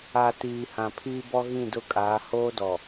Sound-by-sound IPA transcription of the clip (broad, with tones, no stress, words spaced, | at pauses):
a˨ tiː˨hã˨pʰiː˦bɔ˦ ɣĩ˦˨dʊ˦˨kʼaː˨˦ hoː˦dɔ˨